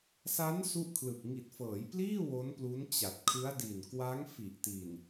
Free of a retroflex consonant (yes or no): yes